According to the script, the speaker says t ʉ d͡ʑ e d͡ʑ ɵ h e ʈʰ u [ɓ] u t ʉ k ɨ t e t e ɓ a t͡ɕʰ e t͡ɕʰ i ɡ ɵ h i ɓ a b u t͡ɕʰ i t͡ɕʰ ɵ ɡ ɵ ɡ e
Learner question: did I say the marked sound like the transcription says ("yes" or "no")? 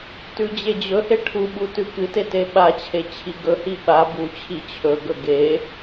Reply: yes